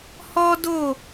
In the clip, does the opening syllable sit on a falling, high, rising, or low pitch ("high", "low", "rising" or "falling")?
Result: high